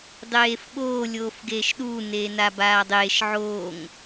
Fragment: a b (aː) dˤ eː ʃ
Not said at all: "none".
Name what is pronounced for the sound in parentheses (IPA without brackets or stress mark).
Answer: aː